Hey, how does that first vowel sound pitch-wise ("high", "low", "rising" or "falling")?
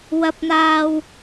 rising